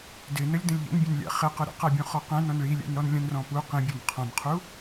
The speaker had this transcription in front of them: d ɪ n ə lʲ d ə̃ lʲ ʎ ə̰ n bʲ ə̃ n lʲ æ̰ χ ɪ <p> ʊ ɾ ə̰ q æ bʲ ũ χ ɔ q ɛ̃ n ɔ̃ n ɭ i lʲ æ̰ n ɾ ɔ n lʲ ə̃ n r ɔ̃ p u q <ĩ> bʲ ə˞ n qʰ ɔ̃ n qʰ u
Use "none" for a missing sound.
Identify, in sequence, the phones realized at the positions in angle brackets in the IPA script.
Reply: q, ĩ

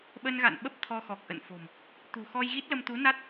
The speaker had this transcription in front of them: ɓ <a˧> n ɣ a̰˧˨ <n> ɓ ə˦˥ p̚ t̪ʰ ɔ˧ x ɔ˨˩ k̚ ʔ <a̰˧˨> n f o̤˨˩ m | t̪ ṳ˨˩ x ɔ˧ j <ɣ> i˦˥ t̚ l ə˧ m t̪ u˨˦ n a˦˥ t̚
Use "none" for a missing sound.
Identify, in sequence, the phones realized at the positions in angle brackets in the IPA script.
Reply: ə˧, n, ə̰˧˨, ɣ

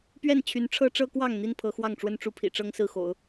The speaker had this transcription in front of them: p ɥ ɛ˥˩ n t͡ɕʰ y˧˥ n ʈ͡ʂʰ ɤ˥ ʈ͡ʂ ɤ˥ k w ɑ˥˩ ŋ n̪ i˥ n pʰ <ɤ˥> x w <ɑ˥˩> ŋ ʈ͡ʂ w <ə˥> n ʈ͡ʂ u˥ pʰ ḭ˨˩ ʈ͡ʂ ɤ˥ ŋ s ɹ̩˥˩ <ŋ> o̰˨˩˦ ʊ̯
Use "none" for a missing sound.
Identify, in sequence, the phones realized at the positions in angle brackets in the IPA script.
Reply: ɤ˧˥, ɑ˥˩, ə˥, x

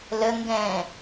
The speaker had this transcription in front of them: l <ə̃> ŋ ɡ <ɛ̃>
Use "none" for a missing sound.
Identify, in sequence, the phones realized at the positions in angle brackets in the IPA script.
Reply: ə, ɛ̃

